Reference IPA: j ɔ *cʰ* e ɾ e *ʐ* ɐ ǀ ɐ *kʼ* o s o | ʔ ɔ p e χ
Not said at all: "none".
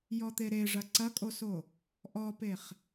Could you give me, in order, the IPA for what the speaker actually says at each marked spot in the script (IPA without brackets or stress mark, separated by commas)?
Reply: t̪, ʐ, kʼ